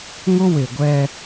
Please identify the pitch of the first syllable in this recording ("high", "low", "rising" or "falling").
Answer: high